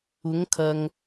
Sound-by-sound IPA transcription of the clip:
ʊ˨˧ ŋ kʰ ɐ˨ ŋ

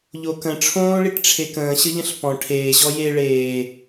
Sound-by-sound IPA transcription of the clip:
ʎ o k ə̃ ʈ͡ʂʰ õː ɭ i ʈ ʈ͡ʂʰ e k ə̃ː ɕ ə ʎ ə̃ ɬ p ɔ̃ ʈʰ eː ʑ ɔ j e ɭ eː

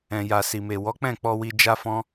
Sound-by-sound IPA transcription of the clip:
ɛ̃˧ j a˧ s i˨ m e˨ w ɔ˨˦ k͡p ɛ̃˦˨ k͡p ɔ˧ w i˧ d͡ʒ a˦ f ɔ̃˦

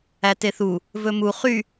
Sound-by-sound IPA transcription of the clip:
æ t e θ u | v ɵ m u χ y

